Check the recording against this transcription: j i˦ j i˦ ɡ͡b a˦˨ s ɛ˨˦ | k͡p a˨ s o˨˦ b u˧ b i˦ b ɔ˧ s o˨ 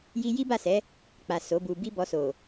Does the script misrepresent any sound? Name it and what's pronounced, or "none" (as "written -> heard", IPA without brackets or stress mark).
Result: ɡ͡b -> b